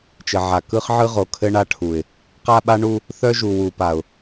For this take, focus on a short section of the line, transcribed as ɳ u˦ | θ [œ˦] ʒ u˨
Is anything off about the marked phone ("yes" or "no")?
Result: no